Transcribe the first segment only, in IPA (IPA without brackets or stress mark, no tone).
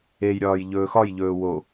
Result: e